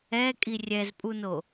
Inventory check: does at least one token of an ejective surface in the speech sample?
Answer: yes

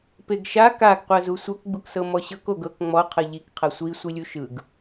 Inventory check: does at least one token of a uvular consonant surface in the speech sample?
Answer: yes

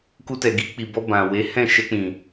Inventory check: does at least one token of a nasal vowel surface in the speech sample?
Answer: yes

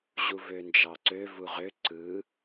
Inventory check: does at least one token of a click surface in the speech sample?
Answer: yes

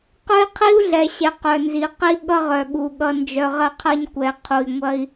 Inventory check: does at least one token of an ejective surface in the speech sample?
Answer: no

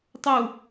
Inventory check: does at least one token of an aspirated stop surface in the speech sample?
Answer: no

